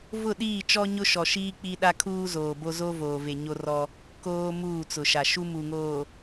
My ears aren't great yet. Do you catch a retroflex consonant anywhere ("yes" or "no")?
no